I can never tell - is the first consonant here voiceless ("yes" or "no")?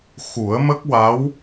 yes